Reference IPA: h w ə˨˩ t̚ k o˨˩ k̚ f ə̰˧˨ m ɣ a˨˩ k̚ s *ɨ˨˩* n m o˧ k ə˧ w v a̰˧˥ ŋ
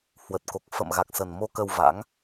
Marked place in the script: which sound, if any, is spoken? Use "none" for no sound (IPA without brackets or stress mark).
ə˨˩